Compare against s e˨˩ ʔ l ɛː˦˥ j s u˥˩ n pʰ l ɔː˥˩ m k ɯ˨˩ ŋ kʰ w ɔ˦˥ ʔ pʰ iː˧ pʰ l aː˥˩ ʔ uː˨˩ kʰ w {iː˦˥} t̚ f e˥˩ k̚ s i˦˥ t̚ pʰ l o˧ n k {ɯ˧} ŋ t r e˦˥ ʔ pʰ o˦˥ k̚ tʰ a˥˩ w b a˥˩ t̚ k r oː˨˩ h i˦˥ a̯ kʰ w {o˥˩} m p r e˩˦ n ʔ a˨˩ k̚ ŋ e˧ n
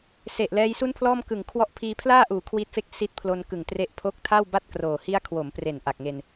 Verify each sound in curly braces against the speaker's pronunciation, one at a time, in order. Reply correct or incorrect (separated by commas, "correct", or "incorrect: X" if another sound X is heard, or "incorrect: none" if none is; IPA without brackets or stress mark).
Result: correct, incorrect: ɯ˨˩, incorrect: o˩˦